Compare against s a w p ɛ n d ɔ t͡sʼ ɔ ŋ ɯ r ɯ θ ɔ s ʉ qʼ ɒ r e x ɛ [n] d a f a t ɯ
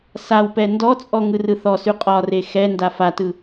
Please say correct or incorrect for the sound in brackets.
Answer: correct